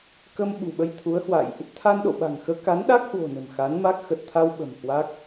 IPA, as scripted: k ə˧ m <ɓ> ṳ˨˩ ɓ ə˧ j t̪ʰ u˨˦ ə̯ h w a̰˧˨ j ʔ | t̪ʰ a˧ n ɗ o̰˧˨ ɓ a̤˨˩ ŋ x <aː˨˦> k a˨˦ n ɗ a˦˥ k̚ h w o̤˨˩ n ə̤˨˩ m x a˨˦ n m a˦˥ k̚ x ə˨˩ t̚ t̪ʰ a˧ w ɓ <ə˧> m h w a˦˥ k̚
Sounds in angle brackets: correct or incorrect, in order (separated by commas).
correct, incorrect, incorrect